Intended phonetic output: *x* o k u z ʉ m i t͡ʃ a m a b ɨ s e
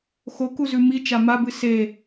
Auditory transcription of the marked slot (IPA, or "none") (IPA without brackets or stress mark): x